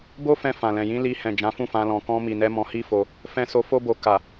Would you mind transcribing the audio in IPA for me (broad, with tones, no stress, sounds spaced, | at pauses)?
b o˦ f ɛ̃˧ f ã˨ l ɛ̃˨ j ĩ˨˦ l i˧ h ɛ̃˨ d͡ʒ ã˨˦ f ũ˦˨ f ã˧ l ɔ̃˨ k ɔ̃˧ m i˨ n ɛ˧ m ɔ̃˧ h i˦ f o˧ | f ɛ̃˧ s o˧ f o˧ b o˨ k a˨